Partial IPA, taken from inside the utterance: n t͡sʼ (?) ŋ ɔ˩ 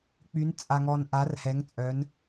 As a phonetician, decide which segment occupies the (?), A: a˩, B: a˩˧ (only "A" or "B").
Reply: A